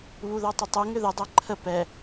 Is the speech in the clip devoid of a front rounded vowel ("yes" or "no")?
no